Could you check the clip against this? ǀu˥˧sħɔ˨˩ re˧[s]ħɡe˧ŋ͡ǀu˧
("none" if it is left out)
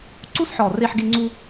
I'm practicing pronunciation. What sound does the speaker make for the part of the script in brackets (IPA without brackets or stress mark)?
none